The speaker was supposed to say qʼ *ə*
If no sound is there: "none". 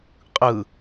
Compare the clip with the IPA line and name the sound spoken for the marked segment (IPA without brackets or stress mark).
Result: ɯ